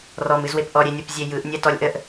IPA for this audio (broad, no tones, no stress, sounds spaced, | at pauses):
r ɔ m ɨ z w e p ʔ ɔ ɾʲ e nʲ o p zʲ e j ɯ ʔ nʲ ɛ t ɔ lʲ ʔ ə ʔ